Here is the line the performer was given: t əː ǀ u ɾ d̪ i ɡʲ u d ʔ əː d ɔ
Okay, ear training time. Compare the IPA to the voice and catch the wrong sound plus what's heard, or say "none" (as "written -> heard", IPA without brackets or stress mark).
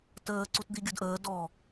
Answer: ɾ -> t